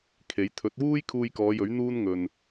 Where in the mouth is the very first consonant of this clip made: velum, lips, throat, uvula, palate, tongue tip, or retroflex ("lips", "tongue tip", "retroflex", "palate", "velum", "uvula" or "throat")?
velum